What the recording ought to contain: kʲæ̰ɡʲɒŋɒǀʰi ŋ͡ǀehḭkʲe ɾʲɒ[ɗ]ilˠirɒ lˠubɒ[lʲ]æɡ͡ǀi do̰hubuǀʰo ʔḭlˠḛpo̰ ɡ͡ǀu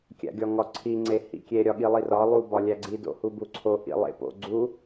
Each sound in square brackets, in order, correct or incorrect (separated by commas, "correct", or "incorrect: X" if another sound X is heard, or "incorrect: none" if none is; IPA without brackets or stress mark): incorrect: ɠ, correct